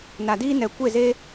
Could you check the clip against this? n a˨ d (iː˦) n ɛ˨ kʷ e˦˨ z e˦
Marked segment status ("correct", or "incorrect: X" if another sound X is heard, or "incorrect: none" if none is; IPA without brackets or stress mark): correct